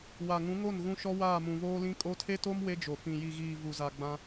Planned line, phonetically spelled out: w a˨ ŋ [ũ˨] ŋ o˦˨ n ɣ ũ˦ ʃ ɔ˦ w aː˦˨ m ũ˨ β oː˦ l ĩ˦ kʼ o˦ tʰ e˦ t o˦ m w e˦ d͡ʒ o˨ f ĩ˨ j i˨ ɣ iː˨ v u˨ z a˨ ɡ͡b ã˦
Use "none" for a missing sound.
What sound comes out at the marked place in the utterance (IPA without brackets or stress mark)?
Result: ũ˨˦